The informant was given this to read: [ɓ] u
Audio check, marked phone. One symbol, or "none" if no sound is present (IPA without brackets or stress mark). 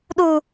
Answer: ɗ